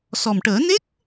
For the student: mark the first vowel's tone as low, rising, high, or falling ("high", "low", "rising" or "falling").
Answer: low